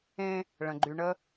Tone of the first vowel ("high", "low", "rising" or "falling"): high